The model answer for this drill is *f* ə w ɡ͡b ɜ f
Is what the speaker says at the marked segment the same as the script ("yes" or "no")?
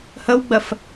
no